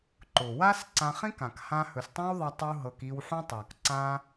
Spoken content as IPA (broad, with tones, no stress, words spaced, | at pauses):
ǃʊ˨ wa˦s ǀã˧χĩ˦k ã˨k hã˧hɵ˨stˤĩ˦wðˤa˧ tˤu˦ɦɤ˧k i˧wħũ˦tˤa˨kǀã˦